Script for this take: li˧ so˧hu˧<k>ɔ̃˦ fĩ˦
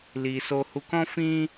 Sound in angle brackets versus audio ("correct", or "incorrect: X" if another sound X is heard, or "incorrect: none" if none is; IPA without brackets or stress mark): correct